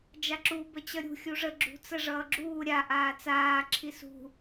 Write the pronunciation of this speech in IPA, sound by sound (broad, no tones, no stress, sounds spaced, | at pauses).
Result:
d͡ʒ a ǁ u b ə t͡ɕ ʌ ɾʲ ṳ xʲ u ʐ ə ɡ͡ǁ ṳ t͡s ə ʐ ʌː ɡ͡ǁ uː ɾʲ a ʔ aː t͡s aː ǁʰ i s ṳ